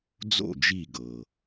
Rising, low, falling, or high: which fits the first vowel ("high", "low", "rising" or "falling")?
falling